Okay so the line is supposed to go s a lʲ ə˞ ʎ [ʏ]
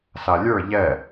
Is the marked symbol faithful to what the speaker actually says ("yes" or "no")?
no